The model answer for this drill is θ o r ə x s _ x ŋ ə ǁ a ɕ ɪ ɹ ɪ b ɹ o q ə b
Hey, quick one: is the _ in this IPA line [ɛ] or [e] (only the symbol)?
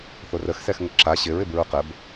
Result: ɛ